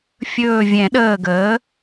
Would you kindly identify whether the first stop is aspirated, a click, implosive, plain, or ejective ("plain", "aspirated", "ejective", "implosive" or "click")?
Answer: implosive